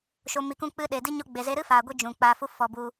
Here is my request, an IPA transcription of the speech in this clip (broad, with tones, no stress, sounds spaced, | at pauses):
ʃ o˧ m i˧ k ũ˦ k͡p ɨ˦ ɗ e˨ d i˦ ɲ o˦ ɡ͡b e˧ z e˦ ɾ ɨ˦ f aː˨ ɡʷ i˧ d͡ʒ ũ˨ k͡p aː˧ f u˦ f ɔ˧ b u˧